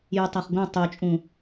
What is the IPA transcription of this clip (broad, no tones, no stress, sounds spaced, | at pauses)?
j u tˤ æ χ ɡʷ æ̃ tˤ o t͡ʃʼ ũ